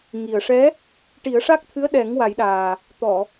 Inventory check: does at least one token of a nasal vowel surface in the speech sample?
no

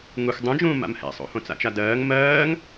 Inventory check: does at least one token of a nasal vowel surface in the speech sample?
yes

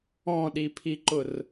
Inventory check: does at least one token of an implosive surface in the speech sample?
yes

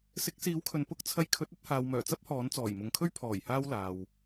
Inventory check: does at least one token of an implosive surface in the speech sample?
no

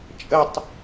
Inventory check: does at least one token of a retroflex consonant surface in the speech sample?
no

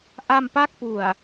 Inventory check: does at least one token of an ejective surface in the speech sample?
no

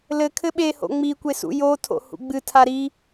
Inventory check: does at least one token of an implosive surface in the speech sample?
yes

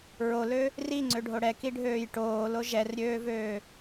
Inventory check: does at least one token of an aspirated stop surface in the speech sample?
no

